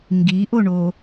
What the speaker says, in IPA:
ŋ ɡ i ʔ o ɳ o

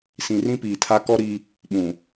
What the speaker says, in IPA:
s ĩ˨ r ĩ˦ p iː˨ tʰ a˦ k ɔ˦ ɾ i˦ | ɓ ũ˨

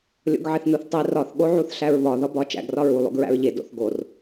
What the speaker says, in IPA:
lʲ o̰ ɡ ʕ e θ n u θ tˤ i r ɒ θ ɠ o ʕ u θ ɬ æ ɹ β ɒ ð ɒ b ɒ t͡ʃ æ̰ ɡ r ɒ ɹ u lˠ o̰ ɡ ɹ æ̰ ɹ ʎ e d o̰ θ ɡ o r

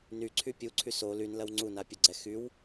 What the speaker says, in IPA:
n y ǀʰ y pʲ u ǀʰ y s o l y n l ɐ w ŋ͡ǀ u n a pʲ ɐ ɡ͡ǀ ɛ x y w

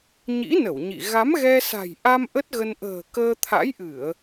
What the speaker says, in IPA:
ɲ ḭ˧˥ n ə˧˩ w ɲ ḭ˧˨ ɣ a˨˦ m ɣ ɛ˧ s a̤˨˩ j ʔ a˧ m ʔ ə˦˥ t̚ ɣ ə˧ n ʔ ə̤ː˨˩ k əː˧ t̪ʰ a̰˧˥ j ʔ ɨ˧˩˨ ə̯

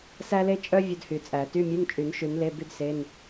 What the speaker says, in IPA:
s æ˥ l e˥ t͡ʃʼ œ˥ vʲ ɵ˥ d h y˨˩˦ t͡sʼ æ˨˩˦ t y˧˥˧ mʲ ʉ˧˥˧ n t͡ʃʼ y˨˩˦ n ʃ ʉ˨˩˦ n l e˧˥˧ b y˥ d s e˧˥˧ n

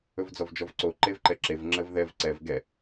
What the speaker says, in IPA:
ɵ v d͡z ɔ v d͡ʒ ɔ v ǀ o ǃ e v ǃ ɛ ǁ e v ŋ͡ǁ ə v ð ɛ v ǀ ɛ v ɡ ɛ

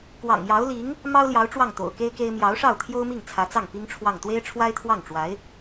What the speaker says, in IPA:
k w ɑ̰˨˩ ŋ j ɑ˧˥ ʊ̯ l i˧˥ ŋ | m ɑ˥ ʊ̯ l j ɑ˧˥ ʊ̯ ʈ͡ʂ w ɑ˥˩ ŋ t̪ o̰˨˩ ʊ̯ k e˥ ɪ̯ k e˥ ɪ̯ m j ɑ˧˥ ʊ̯ ʂ ɑ˥˩ ʊ̯ t̪ʰ j o˥ ʊ̯ m i˥˩ ŋ t͡sʰ ä˧˥ t͡s ɑ˥˩ ŋ p i˥ ŋ ʈ͡ʂʰ w ɑ˥˩ ŋ t̪ w e˥ ɪ̯ ʈ͡ʂʰ w a˥ ɪ̯ t̪ʰ w ɑ˥˩ ŋ ʈ͡ʂ w a˧˥ ɪ̯

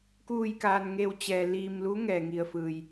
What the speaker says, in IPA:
k uː˧˩ j k aː˩ n ŋ e˧˩ w t͡ɕ ɛː˩ l iː˧˩ m l u˧˥ ŋ ɛː˩ ŋ i˩ ə̯ f ɯː˩ j

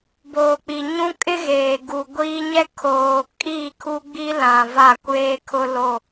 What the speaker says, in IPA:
b oː˨ k͡p i˨ ɲ ũ˦ kʼ ɪ˦ ɣ eː˨ ɡ u˨ ɡʷ iː˦ ɲ ɛ˦ kʰ oː˨ kʼ iː˦˨ kʰ u˦ ɡ͡b i˦ l ã˨ v a˦˨ kʷ eː˦ kʰ ʊ˦ l o˦˨

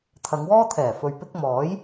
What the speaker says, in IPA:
t̪ʰ ɐ˨˧ ŋ w ɔː˥ t̪ʰ ɛː˨˩ f ɵ˨ ɥ p ɪ˧ k̚ m ɔː˨˥ j

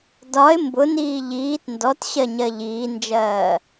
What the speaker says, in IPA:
d ɒ ɪ̯ m b ʊ n iː ʎ iː t n d ɔ t ɕ ɜ ɲ ɜ ʎ iː n d͡ʒ ɜː

